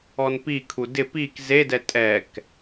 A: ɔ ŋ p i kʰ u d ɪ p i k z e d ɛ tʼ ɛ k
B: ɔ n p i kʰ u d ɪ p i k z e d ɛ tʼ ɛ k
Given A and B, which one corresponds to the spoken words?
B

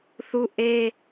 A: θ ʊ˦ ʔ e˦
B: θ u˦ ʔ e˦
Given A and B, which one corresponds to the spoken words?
B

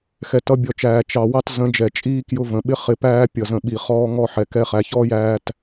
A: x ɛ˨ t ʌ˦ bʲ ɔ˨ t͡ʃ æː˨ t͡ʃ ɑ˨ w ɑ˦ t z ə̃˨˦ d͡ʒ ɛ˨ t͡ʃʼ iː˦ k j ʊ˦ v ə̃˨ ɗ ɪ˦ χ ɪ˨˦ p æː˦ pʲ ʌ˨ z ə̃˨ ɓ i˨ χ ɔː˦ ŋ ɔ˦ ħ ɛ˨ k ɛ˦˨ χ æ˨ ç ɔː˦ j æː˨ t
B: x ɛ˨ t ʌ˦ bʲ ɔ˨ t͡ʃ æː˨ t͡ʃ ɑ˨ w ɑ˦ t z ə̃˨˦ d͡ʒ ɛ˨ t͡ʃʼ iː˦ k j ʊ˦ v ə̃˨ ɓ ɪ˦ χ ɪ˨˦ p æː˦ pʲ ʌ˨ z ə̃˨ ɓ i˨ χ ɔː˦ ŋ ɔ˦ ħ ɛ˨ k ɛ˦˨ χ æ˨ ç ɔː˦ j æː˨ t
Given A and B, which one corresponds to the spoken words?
B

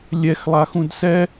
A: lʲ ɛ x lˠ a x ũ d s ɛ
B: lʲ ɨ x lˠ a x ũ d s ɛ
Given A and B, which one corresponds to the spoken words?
A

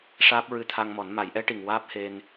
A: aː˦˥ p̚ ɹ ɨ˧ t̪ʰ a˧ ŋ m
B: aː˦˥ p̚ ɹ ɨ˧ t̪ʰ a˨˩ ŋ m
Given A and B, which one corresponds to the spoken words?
A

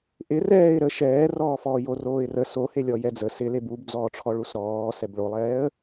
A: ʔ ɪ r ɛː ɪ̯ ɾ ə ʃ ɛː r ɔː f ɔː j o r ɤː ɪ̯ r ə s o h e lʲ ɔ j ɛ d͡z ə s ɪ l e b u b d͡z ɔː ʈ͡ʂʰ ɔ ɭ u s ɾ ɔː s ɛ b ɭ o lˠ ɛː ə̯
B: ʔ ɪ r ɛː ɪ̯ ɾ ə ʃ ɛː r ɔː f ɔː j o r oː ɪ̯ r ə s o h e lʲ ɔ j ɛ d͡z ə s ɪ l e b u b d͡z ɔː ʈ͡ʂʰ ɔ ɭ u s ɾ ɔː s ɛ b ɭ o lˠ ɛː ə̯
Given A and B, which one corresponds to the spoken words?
B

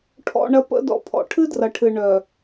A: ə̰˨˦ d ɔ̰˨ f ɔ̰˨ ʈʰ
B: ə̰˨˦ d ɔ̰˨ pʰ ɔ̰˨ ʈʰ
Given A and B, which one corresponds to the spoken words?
B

